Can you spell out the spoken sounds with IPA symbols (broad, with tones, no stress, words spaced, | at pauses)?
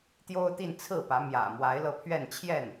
t̪jo˥ʊ̯t̪i˥˧n t͡sʰɹ̩˥˩pä˧˥ mjä̰˨˩mwa˧˥ɪ̯ lɤ˥˧pʰɥɛ˥˧nt͡ɕʰjɛ˥˩n